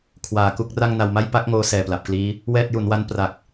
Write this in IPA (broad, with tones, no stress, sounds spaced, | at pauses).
kʰ w aː˨˩ k u˥˩ k̚ r a˥˩ ŋ n a˧ w m a˥˩ j p a˥˩ k̚ ŋ oː˧ s ɛː˨˩ p l a˨˩ p̚ k l iː˦˥ | w ɛː˥˩ t̚ j u˩˦ n w a˦˥ n p r a˨˩ k̚